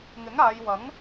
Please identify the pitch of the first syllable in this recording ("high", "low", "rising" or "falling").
rising